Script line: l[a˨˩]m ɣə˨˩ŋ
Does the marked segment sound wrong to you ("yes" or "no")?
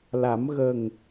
yes